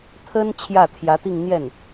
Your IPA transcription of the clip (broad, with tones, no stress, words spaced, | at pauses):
t̪ʰə˥n t͡ɕʰjä˥˩t̪ʰjä˧˥t̪i˥˧ŋn̪jɛ˥˩n